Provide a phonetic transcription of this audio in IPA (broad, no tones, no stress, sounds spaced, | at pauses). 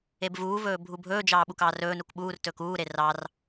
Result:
e b v uː v ɵː bʱ u bʱ ɵː d͡ʒ ɑː ɓ u k ɑː r ɵː n u k ɓ uː r t ɵː k uː ɾ e r ɑ r